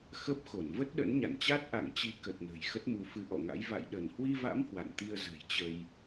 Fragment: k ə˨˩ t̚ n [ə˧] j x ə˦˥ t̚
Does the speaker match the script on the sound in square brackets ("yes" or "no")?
no